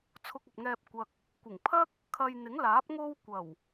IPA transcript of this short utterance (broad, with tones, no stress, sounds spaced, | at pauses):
t͡sʰ ʊ˧ k̚ ɐ˨ p̚ ŋ ɛː˧ p̚ kʷ ɐ˨ k̚ | kʷ ɪ˨˩ ŋ pʰ ɐ˥ k̚ | kʰ ɐ˧ j n̪ ɪ˨˥ ŋ l aː˨˥ p̚ ŋ o˧ w kʷ ɐ˨˩ w